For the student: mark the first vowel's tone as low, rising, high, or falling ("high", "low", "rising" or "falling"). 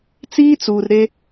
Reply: high